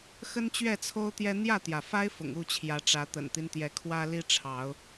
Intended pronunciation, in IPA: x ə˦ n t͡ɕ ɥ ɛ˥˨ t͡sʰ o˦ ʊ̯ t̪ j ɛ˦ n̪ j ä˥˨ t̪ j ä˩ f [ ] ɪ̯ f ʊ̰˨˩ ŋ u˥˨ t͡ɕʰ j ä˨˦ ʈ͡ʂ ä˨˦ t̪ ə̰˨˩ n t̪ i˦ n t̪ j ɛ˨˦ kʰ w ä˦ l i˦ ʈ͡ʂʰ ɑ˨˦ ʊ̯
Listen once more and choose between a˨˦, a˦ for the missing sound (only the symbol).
a˦